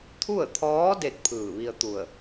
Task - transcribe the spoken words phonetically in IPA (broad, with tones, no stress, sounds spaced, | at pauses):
t̪ʰ u˥˨ ə̯ t̪ʰ ɔː˧˥ d e˥˨ t̚ pʰ ɯː˧˩ ʋ i˧ ə̯ t̪ u˧˩ ə̯